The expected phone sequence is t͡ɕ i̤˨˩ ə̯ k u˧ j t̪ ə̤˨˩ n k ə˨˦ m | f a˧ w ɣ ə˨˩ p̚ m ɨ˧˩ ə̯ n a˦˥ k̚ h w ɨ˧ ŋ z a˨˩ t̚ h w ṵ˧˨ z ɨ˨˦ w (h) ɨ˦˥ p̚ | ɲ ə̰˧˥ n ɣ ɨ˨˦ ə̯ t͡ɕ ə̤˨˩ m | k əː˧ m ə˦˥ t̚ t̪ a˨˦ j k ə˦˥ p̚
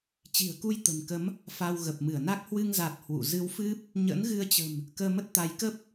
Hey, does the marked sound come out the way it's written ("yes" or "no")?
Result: no